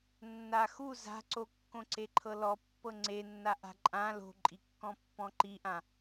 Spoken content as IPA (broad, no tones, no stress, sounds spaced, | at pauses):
nː a x u z a̤ ǀ o kː õ ǀ e ǃʰ ɤ l ɔ pː ɤ ŋ͡ǀ e nː a ʔ a̤ ǃʼ ã l o̤ ǃʼ i kː ɔ̃ pː ɔ̃ ǃ i ʔ ã